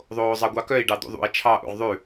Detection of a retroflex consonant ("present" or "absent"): present